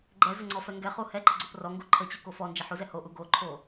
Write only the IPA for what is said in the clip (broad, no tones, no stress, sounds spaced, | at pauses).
ɡ͡ǃ ɛ z ə ŋ͡ǀ ɔ f ɛ ŋ ɡ ɛ χ u h ɛ ǃ ə ɡ͡ǀ o p r ɔ ŋ ɡ u ǃʰ ə t͡ɕ u k o f ɔ n d͡ʒ ə ħ u z ɛ h o ʔ u ɡ o ǃʰ o